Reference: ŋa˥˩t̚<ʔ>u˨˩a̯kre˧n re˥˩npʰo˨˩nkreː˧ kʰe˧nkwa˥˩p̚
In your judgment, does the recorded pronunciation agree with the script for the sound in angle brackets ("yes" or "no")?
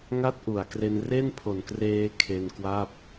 yes